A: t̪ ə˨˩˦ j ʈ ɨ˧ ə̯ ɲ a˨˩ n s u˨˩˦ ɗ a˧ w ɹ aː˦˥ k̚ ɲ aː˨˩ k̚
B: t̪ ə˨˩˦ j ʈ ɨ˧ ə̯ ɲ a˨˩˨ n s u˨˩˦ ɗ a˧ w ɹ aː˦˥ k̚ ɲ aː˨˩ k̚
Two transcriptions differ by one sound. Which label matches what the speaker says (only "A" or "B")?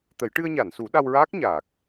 B